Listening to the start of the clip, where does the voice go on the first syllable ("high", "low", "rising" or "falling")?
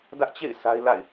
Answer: high